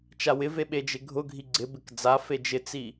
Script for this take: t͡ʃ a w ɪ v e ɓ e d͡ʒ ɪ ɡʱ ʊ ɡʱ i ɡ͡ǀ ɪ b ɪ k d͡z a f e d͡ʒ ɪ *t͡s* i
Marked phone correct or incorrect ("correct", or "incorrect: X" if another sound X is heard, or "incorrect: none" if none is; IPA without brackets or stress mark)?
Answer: correct